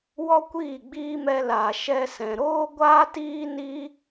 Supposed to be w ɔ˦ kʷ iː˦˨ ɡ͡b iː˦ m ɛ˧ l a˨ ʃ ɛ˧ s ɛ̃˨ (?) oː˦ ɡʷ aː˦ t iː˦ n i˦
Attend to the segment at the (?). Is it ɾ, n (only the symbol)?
ɾ